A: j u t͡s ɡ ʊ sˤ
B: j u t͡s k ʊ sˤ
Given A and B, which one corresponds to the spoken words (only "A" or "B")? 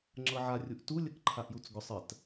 A